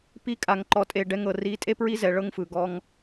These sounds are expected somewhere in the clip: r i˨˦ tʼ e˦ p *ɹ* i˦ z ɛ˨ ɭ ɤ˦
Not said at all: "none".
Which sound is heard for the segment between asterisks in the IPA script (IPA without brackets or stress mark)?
ɹ